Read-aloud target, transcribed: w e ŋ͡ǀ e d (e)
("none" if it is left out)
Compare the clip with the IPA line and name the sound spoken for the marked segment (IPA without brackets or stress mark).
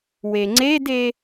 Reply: e